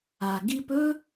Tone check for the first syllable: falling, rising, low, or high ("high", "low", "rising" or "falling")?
low